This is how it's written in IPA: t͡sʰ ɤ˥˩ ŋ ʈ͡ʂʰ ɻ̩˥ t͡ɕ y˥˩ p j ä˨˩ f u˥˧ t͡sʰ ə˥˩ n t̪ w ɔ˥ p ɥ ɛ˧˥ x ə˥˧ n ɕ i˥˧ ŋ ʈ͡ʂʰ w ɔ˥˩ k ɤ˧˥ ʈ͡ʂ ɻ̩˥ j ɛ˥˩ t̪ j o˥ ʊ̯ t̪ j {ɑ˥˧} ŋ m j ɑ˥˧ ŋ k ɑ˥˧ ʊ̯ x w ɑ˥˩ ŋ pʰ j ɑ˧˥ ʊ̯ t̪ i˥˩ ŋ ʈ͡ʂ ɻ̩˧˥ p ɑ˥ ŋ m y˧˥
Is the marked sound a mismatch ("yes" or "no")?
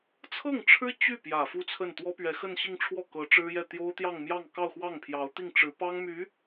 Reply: no